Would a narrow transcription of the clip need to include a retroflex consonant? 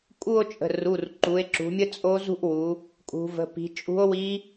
no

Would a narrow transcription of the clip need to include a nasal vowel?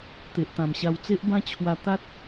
yes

